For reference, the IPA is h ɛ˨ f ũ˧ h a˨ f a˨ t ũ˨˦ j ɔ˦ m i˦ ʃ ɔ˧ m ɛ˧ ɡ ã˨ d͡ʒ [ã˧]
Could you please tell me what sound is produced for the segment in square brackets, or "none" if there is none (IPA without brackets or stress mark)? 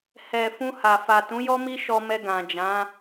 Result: ã˨˦